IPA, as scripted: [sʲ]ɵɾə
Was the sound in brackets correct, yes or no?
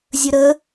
no